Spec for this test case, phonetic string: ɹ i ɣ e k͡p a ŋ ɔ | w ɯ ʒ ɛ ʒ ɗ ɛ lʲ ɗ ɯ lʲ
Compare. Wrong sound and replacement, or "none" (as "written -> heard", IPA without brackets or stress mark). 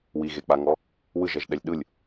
ɹ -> w